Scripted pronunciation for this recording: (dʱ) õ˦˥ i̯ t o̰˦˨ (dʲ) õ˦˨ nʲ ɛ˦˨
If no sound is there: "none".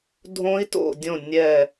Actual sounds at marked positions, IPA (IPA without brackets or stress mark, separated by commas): dʱ, dʲ